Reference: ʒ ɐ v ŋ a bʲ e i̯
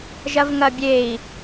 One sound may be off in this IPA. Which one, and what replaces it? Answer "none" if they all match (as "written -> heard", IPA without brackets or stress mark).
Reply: a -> ɐ